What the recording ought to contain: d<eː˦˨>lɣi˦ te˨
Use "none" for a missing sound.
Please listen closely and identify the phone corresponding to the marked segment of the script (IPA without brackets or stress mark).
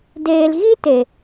eː˨